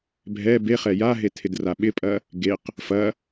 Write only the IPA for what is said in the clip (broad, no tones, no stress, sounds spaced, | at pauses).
bʱ ɛ b e χ ɛ j a ɦ e tʰ ɪ d r a ɓ ɪ pʼ ɐ | ɡ e q | f ɐ